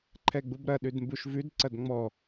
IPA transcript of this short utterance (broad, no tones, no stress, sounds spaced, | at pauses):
ǃʰ ɛ ɡ͡b u b ɾ ɐ ɗ ʉ d m b u ʃ v ʉ d ǀ ɐ d ŋ͡m ɔ